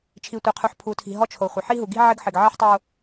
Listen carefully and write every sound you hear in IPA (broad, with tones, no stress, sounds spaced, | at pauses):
t͡ʃʰ i˨ tʷ i˨ qʰ u˨ ħ pʰ u˨ tʰ i̤˨ ɦ ɔ˦ t͡ʃʰ o˨ χʷ ɪ˨ ħ i˦ ɦ u˨ ɡ i̤˦ ʕ ɪ˦ ɡ ħ ɪ˨ ɡ ʕ i˦ ħ tˤ o˦